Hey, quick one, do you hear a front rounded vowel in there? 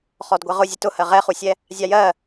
no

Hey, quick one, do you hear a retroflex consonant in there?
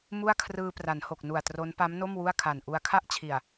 no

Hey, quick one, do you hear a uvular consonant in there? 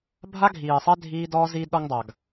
no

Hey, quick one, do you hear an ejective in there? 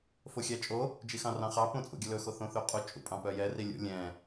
yes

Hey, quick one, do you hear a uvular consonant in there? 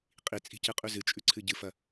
yes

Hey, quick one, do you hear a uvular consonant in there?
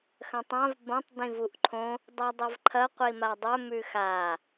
yes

